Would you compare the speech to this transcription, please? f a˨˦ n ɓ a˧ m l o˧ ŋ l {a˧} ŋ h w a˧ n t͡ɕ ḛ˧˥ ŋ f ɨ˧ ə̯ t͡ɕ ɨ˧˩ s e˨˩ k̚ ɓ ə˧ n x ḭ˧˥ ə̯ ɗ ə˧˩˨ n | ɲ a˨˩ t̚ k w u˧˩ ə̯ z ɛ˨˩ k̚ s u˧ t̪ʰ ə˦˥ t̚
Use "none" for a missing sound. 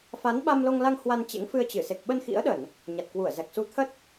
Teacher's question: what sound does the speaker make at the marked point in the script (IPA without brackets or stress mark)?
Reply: a˧